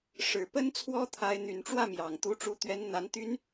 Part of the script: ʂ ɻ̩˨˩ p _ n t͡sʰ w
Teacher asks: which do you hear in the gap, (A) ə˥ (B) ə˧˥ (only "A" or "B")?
A